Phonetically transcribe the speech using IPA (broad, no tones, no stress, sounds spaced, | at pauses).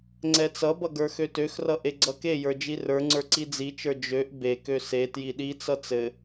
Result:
ŋ͡ǀ ɛ t͡s ʌ b ʌ ɡ ə˞ x ø t ø x r ʌ ʔ e ɡ͡ǀ ʌ k e j ə˞ d͡ʒ i r ə˞ ŋ͡ǀ ə˞ ǀ i d͡z i t͡ʃ ə˞ d͡ʒ ø ʔ b e k ø s e t j i ɗ i t͡s ʌ t͡s ɘ